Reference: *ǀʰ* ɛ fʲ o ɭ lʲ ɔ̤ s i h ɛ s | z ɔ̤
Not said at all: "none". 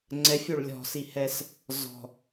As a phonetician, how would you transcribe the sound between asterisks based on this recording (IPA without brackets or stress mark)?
ŋ͡ǀ